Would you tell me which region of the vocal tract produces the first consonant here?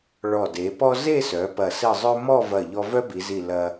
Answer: retroflex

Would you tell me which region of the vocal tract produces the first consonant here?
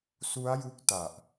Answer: tongue tip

